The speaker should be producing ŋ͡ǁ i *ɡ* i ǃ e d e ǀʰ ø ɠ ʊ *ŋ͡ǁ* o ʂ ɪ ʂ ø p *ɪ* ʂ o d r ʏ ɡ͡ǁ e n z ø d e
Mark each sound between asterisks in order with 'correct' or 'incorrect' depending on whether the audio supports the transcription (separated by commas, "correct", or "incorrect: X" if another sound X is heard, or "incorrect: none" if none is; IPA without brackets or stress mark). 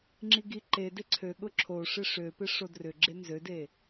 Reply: correct, incorrect: ǁʰ, correct